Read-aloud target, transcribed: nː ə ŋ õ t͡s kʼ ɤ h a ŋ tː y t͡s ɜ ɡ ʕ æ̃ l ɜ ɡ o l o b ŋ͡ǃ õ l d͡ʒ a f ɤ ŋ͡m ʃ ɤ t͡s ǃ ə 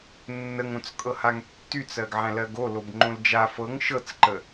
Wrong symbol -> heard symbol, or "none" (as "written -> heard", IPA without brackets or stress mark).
ŋ͡m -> ŋ